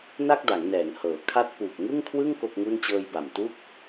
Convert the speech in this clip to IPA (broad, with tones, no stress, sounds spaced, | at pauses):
n a˥˩ k̚ d a˩˦ ŋ n ɛː˩˦ ŋ h ɤː˩˦ kʰ a˥˩ t̚ p uː˨˩ k̚ ŋ ɯ˥˩ ŋ kʰ w ɯ˥˩ ŋ k o˥˩ k̚ ŋ u˥˩ n t͡ɕ ɤː˧ j b a˨˩ m t u˥˩ k̚